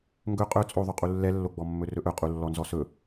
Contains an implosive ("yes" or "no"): no